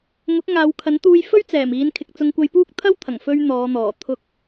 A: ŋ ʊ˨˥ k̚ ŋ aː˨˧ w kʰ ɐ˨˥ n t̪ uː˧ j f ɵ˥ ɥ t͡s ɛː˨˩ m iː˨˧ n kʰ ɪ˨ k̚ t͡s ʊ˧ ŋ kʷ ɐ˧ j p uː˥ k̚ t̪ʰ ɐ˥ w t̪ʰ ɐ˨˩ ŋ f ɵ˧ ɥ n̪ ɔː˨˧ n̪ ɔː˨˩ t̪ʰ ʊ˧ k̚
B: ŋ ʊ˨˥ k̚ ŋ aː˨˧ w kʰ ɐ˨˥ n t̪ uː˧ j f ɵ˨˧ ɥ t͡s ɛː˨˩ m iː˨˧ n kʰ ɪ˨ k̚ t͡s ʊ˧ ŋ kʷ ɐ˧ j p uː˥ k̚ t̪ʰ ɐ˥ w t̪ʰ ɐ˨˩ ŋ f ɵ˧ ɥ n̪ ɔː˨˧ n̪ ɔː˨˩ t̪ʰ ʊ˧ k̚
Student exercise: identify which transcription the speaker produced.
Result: A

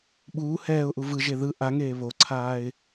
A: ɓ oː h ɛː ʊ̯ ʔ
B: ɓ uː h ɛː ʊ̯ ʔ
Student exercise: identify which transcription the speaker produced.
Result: B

